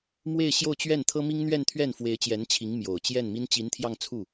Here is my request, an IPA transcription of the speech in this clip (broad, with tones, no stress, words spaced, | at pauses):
mwe˥˧ɪ̯ɕjo˥˧ʊ̯t͡ɕɥɛ˥˩n t̪ʰɤ˥mi˥ŋ n̪ɥɛ˥˧nt̪ʰɥɛ˥˩n fwe˧˥ɪ̯t͡ɕjɛ˧˥nt͡ɕʰi˧˥ŋ mjo˨˩ʊ̯ t͡ɕjɛ˥˩nmi˥n t͡ɕi˧˥nt̪ʰjɑ˥˧ŋt͡sʰu˥˩